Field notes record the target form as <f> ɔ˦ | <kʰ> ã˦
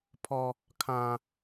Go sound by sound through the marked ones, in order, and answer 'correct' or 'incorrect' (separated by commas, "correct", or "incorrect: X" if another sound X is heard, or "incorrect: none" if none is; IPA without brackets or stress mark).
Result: incorrect: pʰ, correct